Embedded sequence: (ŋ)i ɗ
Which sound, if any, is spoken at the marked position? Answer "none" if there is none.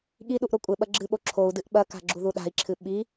ɠ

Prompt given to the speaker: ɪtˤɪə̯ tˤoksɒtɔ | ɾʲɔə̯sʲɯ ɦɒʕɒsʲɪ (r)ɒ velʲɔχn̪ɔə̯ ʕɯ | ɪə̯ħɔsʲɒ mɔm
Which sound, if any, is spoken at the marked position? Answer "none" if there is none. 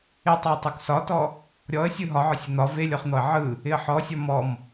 n̪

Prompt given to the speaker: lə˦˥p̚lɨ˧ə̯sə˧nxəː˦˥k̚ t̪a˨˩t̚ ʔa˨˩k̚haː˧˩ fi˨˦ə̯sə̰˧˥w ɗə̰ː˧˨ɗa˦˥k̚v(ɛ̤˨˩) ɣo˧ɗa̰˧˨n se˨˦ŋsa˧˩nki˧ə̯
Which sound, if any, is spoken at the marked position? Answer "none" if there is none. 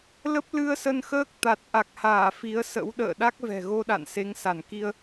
ɛ̤˨˩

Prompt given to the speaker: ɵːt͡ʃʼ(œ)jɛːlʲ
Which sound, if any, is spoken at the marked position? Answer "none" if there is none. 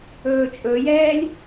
ɵ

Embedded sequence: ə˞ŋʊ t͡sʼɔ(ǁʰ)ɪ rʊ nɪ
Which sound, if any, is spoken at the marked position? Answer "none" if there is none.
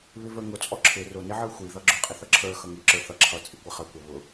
ǁʰ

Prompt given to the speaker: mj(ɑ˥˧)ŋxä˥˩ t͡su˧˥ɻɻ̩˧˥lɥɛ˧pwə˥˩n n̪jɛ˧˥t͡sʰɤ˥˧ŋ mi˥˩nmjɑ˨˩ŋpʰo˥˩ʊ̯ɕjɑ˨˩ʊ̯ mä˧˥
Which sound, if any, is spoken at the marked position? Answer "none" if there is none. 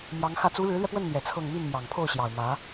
ɑ˧˥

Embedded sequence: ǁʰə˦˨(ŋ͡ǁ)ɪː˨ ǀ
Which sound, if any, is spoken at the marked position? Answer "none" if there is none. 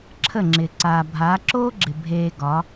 ŋ͡ǁ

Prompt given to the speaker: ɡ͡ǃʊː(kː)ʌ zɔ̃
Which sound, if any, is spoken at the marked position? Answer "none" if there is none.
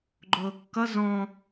kː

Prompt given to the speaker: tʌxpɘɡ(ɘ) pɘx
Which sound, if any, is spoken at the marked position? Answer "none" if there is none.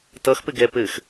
ɛ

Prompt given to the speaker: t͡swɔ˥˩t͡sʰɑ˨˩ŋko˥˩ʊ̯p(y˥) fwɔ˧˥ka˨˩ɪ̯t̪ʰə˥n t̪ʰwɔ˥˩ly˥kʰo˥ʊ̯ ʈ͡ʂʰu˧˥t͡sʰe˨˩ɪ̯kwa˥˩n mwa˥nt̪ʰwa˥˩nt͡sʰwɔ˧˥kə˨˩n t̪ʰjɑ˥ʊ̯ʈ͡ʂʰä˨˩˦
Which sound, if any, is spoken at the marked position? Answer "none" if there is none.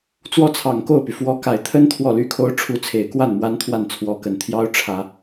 y˩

